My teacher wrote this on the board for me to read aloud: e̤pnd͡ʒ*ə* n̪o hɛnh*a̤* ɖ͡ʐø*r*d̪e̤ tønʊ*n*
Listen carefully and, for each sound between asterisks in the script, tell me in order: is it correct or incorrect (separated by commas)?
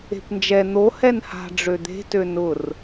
incorrect, correct, incorrect, incorrect